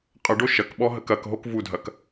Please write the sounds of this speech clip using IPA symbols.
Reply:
qʼəɖo ʃɐkɓɔ ɦəkɐkɦok vudʱɐk

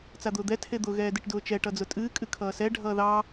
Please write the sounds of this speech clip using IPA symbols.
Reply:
t͡sad̪ʊːd̪ɛ tʰed̪ʊ ɣɛːdɨʈdʊːt͡ʃɛ ʈʌd͡zʊtʼɨː kʼɨkʰʌːsɛ ɖʱʌːðɑ

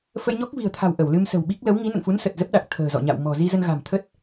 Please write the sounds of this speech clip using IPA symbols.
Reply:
fə˧jɲɔ˦˥k̚vi̤˨˩ə̯t̪ʰa̤˨˩w ʔə˧˩wlɨ˧msə̤˨˩wɓi˦˥k̚ lə˨˦wŋi˨˦ nə̰˧˨nfu˨˦n sə˨˩t̚zə˦˥p̚ ɗa˨˩k̚ t̪ʰə̤ː˨˩zɔ̰˧˨ɲa̰˧˨w mɔ̤˨˩zi˧ zə˧nɣa̤˨˩mt̪ʰə˦˥t̚

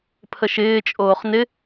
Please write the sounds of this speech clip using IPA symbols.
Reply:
pʰəʃɪː t͡ʃʼoːχnɪ

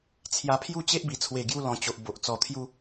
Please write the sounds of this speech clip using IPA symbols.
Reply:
t͡sʰja˧pʰju˥˧t͡ɕe˦ʔ bi˨˩t͡sʰwe˨˩ ɡju˧lɔ̃˨˩ t͡ɕo˨ʔbo˨ʔ t͡sɔ˨˩t̪ʰju˧

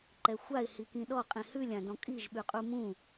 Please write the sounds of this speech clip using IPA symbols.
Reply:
ǃɛxʷaɪ̯hikĩ ɗɔqʼĩ hʉlʲãdɔ̃ kʼiʒ ɓʉqʼumũ

